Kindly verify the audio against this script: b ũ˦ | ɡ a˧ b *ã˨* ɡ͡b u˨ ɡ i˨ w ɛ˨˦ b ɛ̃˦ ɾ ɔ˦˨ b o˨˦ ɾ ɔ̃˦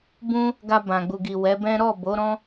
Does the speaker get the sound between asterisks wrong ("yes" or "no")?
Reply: no